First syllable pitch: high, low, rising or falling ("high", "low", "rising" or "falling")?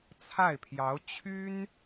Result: falling